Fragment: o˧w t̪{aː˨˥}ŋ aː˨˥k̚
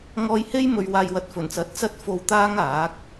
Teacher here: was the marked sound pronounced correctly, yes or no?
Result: no